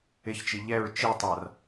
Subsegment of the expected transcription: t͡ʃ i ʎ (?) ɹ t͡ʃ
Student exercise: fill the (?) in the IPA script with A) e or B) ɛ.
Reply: B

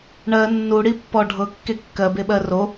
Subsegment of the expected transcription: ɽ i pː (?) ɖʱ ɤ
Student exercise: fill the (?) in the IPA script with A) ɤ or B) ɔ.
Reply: B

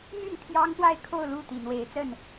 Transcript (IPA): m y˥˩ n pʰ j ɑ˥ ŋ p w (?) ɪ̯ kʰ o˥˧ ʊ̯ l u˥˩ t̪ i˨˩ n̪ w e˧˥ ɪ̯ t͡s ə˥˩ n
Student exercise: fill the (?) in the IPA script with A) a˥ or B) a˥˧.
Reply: B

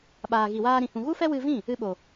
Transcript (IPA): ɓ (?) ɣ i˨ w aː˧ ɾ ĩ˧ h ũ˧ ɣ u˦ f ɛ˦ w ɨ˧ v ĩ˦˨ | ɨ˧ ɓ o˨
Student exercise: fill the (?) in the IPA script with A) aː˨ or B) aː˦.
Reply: A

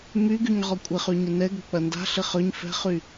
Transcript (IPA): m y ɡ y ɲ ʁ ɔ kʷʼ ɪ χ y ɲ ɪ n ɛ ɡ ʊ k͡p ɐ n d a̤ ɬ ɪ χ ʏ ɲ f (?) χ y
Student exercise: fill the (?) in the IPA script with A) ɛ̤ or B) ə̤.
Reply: A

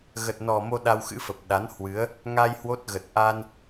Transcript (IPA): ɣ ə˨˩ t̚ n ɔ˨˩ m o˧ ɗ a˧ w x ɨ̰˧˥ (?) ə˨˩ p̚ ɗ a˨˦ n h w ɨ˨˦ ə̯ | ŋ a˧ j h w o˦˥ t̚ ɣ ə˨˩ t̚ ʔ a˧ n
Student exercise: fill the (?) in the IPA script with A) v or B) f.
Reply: B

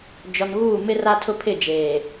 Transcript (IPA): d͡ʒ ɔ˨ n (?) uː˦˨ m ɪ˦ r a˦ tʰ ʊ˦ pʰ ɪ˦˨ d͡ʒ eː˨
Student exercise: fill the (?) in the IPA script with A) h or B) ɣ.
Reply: B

